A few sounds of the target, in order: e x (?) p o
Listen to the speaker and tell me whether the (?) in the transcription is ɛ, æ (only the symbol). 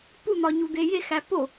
æ